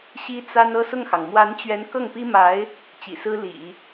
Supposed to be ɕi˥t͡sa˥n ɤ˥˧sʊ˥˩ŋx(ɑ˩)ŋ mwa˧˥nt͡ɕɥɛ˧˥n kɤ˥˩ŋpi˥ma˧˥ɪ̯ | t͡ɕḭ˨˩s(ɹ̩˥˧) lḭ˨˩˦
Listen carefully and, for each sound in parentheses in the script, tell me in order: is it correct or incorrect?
correct, incorrect

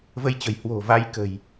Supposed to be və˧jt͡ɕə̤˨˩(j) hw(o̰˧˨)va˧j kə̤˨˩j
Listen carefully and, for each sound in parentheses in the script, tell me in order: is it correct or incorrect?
correct, incorrect

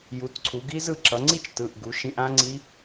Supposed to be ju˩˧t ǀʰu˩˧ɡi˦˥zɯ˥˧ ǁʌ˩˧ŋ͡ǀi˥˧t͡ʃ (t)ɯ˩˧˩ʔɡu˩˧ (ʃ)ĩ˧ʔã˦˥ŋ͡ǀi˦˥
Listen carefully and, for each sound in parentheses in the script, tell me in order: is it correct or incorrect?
correct, correct

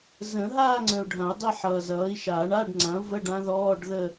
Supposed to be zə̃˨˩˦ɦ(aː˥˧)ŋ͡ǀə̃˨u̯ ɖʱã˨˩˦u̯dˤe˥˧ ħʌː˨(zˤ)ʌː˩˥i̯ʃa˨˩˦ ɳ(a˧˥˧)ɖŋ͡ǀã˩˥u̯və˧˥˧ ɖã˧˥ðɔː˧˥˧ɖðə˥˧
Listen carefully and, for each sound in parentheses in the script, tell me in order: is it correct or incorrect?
correct, incorrect, correct

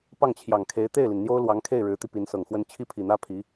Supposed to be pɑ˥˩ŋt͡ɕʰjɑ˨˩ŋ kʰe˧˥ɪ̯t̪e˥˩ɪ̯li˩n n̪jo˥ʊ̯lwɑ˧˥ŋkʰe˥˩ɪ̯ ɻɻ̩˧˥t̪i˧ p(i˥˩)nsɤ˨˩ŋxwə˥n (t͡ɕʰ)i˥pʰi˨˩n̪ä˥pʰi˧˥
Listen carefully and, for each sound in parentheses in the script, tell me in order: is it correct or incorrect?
incorrect, correct

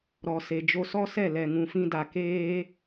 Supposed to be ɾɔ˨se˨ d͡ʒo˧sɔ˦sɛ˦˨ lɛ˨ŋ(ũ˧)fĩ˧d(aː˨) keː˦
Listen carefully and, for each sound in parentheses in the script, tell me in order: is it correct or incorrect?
incorrect, incorrect

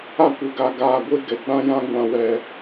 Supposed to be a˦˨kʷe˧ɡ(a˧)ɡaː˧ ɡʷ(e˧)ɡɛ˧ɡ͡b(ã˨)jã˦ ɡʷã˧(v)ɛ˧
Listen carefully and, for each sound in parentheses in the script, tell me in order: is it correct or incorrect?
correct, incorrect, incorrect, incorrect

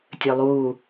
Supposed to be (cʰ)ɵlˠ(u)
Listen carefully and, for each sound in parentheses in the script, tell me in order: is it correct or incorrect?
incorrect, incorrect

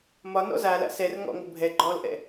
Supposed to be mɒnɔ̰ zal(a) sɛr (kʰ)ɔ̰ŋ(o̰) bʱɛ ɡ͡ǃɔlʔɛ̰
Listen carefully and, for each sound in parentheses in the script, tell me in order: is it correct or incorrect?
incorrect, incorrect, incorrect

